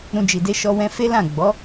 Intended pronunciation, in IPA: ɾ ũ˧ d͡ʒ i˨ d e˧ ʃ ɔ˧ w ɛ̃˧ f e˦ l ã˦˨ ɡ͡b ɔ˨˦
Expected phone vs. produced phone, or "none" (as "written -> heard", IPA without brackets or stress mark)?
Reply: none